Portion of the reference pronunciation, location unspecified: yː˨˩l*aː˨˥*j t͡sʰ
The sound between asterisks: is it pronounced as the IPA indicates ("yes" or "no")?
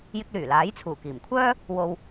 yes